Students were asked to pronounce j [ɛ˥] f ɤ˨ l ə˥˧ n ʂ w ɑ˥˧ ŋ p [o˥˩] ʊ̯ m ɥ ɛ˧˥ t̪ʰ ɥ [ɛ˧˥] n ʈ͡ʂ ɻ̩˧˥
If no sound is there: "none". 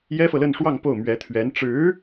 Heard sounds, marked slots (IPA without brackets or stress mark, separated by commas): ɛ˥, o˥˩, ɛ˧˥